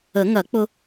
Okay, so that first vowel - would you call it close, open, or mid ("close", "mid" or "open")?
mid